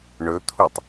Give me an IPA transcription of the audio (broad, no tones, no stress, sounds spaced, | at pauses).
ɳ ɵ t̪ʰ u tˤ